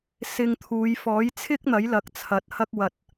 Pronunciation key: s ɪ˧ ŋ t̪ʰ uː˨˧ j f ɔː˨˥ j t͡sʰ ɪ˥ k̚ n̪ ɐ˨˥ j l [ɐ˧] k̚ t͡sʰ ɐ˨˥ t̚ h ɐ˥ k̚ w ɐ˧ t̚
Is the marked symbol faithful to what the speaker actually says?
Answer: no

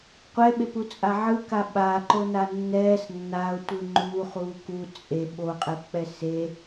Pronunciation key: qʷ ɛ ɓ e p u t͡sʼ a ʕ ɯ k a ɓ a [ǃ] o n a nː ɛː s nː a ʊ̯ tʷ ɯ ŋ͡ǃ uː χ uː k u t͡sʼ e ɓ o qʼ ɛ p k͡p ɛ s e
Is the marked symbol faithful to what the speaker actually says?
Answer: yes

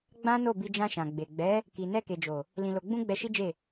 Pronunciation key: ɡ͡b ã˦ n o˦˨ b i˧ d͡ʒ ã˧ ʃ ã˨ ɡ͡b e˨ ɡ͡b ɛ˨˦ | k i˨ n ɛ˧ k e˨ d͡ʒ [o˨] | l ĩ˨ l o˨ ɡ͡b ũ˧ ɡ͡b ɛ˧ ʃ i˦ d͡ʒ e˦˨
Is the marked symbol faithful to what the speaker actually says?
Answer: yes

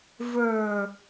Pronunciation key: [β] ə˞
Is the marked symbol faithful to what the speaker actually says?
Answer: no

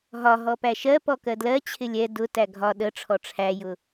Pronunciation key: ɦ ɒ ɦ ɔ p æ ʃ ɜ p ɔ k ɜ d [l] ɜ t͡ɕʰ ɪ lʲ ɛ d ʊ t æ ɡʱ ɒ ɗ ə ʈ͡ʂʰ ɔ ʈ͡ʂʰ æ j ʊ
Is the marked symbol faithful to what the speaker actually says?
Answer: yes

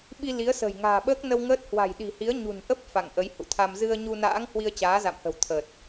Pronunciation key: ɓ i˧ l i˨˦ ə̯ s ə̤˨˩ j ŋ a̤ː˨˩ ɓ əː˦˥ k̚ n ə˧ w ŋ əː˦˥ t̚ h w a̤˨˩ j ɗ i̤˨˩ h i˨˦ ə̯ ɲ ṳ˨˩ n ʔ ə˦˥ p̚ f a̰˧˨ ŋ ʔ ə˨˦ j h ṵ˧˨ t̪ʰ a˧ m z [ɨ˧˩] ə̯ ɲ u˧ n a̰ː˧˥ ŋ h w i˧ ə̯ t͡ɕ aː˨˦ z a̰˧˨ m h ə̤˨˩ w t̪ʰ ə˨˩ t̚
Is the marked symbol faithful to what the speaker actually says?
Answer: no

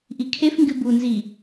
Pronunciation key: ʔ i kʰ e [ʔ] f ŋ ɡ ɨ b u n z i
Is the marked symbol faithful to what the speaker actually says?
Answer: no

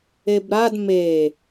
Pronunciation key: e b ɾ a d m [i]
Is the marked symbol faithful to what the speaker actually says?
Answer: no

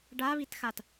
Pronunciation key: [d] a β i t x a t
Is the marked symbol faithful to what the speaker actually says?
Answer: no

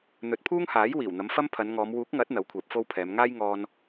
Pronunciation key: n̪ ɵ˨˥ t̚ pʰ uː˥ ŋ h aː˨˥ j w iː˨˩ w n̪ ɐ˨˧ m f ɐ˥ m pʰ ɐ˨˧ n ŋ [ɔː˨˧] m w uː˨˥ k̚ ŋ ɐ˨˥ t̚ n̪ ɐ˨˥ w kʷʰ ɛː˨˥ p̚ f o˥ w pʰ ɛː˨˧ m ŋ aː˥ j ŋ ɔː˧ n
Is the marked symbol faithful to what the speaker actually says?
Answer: yes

